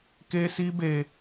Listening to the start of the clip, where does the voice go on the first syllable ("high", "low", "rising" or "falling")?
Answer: high